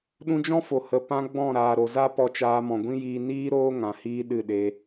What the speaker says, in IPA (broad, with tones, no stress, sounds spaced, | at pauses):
ɗ ũ˧ d͡ʒ ɔ̃˦ f o˨ h ə˨ p ã˦ ɡ͡b ɔ̃˦˨ ɾ aː˨ ɾ o˨ z a˦ p ɔ˧ t͡ʃ aː˧ m ɔ̃˨ ɡʷ ĩ˦ j iː˧ n iː˦ ɾ oː˦ ŋ ã˨ h iː˦ ɗ ɨ˦˨ ɗ e˧